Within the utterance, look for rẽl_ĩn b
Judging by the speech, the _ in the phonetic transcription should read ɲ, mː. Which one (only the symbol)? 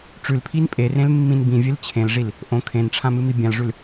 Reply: mː